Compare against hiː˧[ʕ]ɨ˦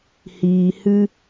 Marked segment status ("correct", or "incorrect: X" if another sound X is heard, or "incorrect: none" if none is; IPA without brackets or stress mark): incorrect: h